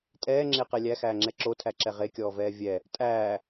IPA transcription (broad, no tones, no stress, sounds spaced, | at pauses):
tʼ ɛː ŋ͡ǁ e q ɛ lʲ æ x æː ŋ͡ǁ ɛ ǁ o tʰ æ ǁ ɛ ʁ e kʲ ɔː v ɛː vʲ ɛ | tʼ æː